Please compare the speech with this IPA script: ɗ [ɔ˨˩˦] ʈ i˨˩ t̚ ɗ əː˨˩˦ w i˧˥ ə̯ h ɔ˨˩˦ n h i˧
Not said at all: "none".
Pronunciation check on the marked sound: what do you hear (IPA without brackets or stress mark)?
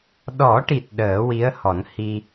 ɔ˨˩˦